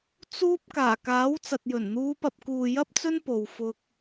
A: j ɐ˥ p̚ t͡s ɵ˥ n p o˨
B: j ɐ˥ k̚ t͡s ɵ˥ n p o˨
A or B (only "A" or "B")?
A